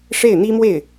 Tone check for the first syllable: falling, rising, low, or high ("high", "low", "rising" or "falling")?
falling